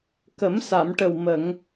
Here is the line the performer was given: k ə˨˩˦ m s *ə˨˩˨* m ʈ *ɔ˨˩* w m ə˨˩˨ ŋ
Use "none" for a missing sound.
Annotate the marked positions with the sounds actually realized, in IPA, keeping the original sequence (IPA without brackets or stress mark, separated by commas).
a˨˩˨, ə˨˩